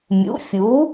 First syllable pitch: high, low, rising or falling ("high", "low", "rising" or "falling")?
rising